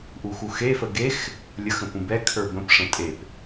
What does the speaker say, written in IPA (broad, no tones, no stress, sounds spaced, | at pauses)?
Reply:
ʔ u x u x e f ə ɡ e x | lʲ ə x ə̃ p ũ b ɛ kʰ ə˞ b ə̃ p ʂ ə̃ tʼ e p